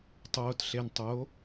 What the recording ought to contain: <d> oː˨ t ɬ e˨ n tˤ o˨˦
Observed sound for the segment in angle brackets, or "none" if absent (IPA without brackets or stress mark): tˤ